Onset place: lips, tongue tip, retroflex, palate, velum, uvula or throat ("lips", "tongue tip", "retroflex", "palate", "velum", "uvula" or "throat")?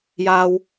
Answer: palate